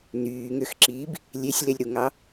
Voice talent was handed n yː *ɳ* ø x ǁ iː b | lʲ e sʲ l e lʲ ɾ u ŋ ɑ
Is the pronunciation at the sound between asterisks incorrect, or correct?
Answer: incorrect